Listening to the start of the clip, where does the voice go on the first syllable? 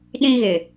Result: high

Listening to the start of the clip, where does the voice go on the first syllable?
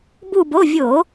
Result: falling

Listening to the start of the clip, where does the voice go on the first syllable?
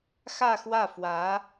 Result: falling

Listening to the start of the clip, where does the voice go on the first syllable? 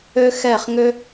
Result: high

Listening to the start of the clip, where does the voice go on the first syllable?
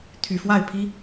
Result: low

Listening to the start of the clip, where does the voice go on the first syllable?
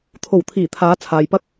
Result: low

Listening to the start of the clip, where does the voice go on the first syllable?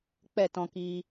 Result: falling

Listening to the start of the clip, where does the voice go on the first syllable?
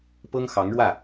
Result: high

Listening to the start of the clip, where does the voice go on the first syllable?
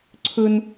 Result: high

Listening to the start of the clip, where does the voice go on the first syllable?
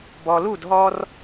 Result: low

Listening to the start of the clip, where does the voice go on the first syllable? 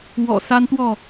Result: low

